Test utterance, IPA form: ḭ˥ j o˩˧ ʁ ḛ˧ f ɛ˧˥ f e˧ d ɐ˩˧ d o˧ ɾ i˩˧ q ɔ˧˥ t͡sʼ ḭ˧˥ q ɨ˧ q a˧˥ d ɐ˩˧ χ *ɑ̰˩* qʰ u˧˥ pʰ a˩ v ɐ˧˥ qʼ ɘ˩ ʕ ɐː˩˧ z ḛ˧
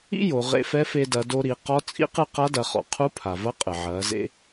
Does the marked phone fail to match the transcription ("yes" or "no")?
yes